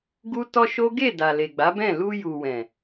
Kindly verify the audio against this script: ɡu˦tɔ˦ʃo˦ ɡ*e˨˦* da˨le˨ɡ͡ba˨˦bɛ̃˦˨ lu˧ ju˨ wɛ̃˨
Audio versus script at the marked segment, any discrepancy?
yes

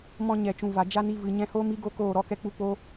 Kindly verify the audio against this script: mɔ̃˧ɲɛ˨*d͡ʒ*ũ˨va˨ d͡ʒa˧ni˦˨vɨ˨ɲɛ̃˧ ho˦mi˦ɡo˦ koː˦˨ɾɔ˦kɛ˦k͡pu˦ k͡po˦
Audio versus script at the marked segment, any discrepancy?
yes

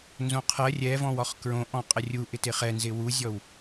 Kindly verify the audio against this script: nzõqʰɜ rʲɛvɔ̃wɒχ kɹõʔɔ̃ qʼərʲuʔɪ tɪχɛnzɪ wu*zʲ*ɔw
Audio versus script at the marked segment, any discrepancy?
no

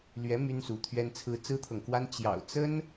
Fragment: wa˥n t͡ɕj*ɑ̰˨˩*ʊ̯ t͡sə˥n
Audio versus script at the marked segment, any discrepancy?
no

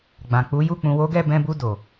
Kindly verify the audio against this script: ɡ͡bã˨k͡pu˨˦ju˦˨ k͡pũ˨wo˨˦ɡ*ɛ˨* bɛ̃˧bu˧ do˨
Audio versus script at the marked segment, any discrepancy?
yes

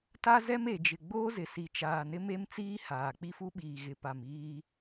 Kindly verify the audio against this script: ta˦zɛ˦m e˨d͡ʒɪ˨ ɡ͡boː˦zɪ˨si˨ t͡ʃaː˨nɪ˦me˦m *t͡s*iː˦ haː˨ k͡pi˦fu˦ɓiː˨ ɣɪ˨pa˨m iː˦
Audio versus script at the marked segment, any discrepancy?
no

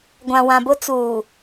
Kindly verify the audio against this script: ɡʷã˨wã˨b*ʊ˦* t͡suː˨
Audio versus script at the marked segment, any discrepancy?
no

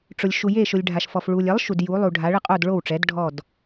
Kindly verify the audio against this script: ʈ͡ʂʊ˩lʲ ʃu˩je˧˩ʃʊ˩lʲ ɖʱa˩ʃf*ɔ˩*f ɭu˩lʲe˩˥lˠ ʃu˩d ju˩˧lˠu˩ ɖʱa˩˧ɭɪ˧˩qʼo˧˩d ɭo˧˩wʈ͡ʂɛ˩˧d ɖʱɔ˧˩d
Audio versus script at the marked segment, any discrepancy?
no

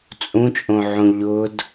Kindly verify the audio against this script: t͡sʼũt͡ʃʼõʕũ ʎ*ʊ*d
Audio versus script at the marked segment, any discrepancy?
no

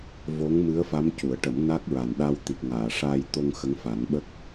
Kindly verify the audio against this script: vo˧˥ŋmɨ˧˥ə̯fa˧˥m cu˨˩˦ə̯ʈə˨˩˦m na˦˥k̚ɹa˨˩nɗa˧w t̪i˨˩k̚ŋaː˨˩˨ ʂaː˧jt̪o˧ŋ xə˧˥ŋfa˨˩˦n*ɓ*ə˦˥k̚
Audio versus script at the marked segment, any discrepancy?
no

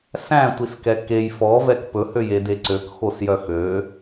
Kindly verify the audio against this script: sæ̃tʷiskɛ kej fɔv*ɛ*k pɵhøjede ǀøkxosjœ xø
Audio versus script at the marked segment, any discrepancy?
no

